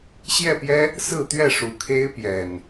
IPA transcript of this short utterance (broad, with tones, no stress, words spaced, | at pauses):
ɕjɛ˥˨pjɛ˦ | sɹ̩˥˨t̪ɥɛ˥˨ ʂu˨˩kʰe˦ɪ̯ pjɛ˨˩n